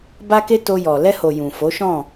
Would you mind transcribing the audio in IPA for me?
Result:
b a˦ k e˦ t o˧ j ɔ˨ l ɛ˧ h o˨ j ũ˨ f o˨˦ ʃ ɔ̃˦˨

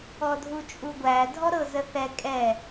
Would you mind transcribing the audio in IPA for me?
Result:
ɔ dʱ u t͡ʃʼ u ɡʷ æ dʱ ɔ ɾ ɤ z ə θ ɛ kʼ ɛ

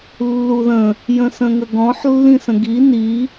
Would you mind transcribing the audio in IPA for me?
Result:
lː u ð ə̃ | j ə̃ s ə̃ ŋ ə ɡ ɔ̃ ħ lː ĩ s ə̃ ɡ i n i

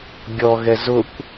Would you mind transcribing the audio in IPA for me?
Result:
ɡʲ ɔ ɣ ɛ z ʊ kʷ

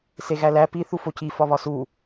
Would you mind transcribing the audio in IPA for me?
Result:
s e ɣ æ l æ p i θ u f o c i f ɒ β ɒ s u

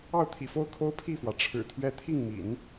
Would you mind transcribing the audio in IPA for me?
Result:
ɑ˥˩ ʊ̯ t̪ʰ ḭ˨˩ f o˥˩ ʊ̯ kʰ o˥ ʊ̯ pʰ i˥˩ f w ä˩ ʈ͡ʂʰ ɻ̩˨˩ t̪ʰ ɥ ɛ˥˧ t̪ʰ i˥˩ ŋ m ḭ˨˩˦ n

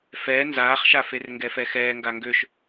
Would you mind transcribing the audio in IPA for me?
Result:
f ɛ n z aː χ ʃ a f e r ŋ ɡ ɛ f ɛ x ɛː ŋ ɡ a ŋ ɡ ø ʃ

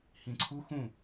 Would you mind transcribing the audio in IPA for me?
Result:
h ĩ ǀʰ u x ũ

